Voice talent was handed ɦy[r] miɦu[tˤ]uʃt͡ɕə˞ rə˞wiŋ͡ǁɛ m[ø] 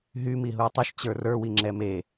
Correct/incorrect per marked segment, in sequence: incorrect: none, correct, incorrect: e

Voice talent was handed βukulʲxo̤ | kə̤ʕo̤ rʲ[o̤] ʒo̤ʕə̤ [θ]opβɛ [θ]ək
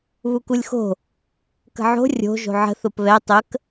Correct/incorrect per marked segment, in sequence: correct, correct, incorrect: tˤ

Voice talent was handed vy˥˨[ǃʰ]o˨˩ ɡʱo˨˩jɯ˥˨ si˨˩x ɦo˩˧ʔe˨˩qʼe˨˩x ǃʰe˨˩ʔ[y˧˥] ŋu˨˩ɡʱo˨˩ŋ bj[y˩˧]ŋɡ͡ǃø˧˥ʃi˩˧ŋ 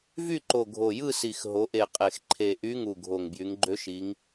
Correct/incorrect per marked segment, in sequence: incorrect: ǃ, correct, correct

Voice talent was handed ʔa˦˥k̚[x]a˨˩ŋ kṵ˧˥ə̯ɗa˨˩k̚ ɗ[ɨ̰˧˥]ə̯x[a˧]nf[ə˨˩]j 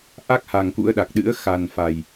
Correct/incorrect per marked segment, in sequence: incorrect: h, correct, incorrect: a˨˩, incorrect: a˨˩

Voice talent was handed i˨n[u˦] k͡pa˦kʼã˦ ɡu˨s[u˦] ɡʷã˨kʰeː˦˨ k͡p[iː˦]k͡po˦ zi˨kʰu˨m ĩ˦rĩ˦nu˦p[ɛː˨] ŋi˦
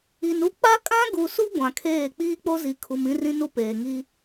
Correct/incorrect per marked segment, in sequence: correct, correct, correct, incorrect: eː˨

